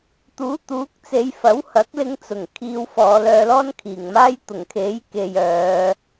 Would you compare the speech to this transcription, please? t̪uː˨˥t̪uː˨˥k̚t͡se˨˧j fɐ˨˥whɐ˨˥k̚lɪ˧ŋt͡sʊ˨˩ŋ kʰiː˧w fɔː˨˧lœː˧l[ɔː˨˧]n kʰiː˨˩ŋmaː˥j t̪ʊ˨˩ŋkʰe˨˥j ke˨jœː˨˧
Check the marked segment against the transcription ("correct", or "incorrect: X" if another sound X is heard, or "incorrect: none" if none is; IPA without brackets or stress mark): incorrect: ɔː˥